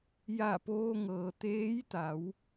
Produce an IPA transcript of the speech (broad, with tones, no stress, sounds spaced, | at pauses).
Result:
j a˧˩ p oː˧ ŋ ɤː˩ t̪ eː˧˥ j t̪ a˩˧ w